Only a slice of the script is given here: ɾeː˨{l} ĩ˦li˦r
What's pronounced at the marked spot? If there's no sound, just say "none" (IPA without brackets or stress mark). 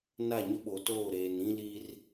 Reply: n